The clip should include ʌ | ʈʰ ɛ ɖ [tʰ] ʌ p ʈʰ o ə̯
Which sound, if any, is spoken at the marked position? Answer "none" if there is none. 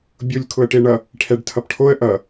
tʰ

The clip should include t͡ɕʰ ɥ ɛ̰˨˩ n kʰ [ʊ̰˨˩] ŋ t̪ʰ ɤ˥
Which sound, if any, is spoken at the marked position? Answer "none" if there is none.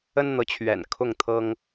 ʊ˥˩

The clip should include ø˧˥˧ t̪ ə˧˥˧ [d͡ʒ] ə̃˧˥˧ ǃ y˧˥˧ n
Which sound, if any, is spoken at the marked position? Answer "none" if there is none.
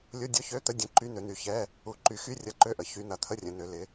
dʲ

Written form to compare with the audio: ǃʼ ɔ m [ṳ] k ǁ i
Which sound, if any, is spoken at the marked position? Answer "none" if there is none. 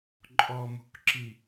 ṳ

